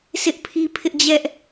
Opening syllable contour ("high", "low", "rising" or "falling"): high